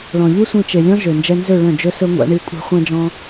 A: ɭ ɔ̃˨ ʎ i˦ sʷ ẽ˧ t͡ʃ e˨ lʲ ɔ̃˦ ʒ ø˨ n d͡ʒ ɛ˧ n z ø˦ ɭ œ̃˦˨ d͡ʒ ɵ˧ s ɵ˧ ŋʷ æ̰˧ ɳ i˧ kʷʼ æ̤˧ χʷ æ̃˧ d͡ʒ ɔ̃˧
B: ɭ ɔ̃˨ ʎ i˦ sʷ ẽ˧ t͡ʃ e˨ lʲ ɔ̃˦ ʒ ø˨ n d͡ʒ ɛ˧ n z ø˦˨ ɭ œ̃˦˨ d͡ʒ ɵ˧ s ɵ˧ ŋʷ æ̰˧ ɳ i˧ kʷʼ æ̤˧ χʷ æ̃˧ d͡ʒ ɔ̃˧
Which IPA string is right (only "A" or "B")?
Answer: B